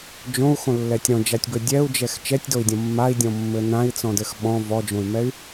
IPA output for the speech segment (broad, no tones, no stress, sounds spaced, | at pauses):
d͡ʒ õ u̯ x õ lː ɛ tʲ ɾ ɔ̃ d͡ʒ a tʲ b ɘ dʲ ɛ u̯ d͡ʒ ɛ x t͡ʃ ɛ tʲ d o i̯ dʲ ɔ̃ mː a i̯ dʲ ɔ̃ mː ɘ n ã i̯ t͡s ɔ̃ d ɘ x ɓ ɔ̃ v ɔ d͡ʒ õ y̯ m ɛ y̯